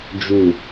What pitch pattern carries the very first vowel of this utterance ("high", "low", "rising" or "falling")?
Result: low